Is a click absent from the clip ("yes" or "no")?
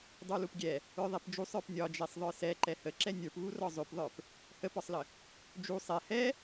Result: no